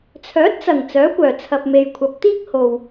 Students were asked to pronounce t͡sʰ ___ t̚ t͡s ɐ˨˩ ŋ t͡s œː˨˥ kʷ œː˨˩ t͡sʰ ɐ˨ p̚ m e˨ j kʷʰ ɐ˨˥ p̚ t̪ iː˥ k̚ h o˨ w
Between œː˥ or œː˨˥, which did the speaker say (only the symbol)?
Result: œː˨˥